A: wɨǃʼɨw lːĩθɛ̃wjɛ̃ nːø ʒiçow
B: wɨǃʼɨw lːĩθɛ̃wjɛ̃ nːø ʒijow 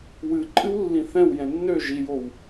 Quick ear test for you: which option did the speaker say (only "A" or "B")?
B